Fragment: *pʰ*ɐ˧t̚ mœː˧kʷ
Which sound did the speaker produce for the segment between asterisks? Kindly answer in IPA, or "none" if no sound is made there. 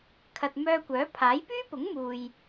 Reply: kʰ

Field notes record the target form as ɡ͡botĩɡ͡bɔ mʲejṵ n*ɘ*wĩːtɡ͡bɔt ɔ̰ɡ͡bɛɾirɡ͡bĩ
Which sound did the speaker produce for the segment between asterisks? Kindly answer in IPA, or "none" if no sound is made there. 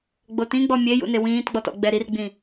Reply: e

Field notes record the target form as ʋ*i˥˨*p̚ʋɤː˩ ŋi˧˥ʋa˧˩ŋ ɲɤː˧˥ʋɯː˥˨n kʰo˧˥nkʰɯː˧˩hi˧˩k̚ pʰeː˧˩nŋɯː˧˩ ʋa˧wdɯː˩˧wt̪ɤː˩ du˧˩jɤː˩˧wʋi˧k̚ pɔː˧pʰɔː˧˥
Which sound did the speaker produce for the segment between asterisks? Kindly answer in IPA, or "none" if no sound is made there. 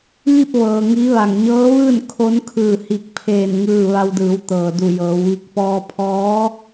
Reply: i˥˨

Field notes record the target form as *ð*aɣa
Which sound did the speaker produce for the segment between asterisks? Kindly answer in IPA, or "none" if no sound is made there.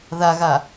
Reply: ð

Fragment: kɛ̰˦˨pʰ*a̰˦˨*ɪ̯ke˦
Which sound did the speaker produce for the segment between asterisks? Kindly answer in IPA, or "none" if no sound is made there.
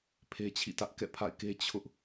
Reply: a̰˦˨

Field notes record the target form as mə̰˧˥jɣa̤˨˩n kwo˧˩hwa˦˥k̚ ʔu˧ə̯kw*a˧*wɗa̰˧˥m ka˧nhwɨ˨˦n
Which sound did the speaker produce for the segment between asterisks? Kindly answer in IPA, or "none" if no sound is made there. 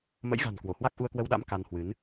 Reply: ə˧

